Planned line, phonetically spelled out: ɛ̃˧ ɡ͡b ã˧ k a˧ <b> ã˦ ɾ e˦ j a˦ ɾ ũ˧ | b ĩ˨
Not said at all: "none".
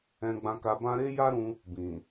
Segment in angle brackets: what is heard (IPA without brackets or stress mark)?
b